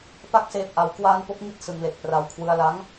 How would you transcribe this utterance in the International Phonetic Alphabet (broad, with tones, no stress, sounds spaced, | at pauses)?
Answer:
p a˥˩ k̚ s eː˦˥ p̚ ʔ a˦˥ w k w aː˧ n p o˦˥ k̚ ŋ i˦˥ t̚ s ɯ˧ ŋ l e˨˩ k̚ p r a˧ w kʰ w ɯ˧ a̯ l a˦˥ ŋ